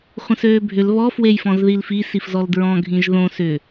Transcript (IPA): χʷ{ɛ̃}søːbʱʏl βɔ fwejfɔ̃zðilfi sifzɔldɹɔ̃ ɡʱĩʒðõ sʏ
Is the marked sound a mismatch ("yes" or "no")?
yes